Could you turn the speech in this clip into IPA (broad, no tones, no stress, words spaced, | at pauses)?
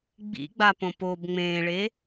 ɡ͡bḭɡ͡bapõ pob ŋ͡mẽːɭe